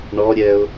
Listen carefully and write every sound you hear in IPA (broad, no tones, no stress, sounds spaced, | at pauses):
ɳ ɔ ɾʲ ɛ ʊ̯